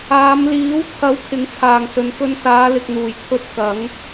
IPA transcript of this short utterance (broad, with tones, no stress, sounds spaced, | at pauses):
aː˨˧ m l iː˨˥ w kʰ ɐ˨˥ w kʰ ɪ˨˥ ŋ t͡sʰ aː˨ ŋ s ɵ˨˧ n k ɵ˧ n s aː˨˧ l ɪ˨ k̚ n̪ uː˨˩ j kʰ ɵ˧ t̚ k ɐ˨˥ ŋ